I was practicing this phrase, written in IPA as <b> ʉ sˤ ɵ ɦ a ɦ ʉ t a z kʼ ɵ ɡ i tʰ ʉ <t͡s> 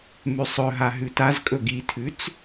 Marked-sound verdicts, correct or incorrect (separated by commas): incorrect, correct